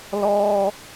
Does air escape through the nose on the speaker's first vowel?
no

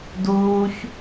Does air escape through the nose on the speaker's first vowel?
no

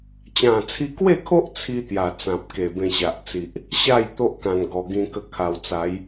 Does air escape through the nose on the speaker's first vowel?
yes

